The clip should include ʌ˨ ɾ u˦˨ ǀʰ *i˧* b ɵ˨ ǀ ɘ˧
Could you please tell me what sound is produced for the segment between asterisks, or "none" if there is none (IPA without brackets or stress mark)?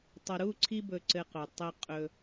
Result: i˧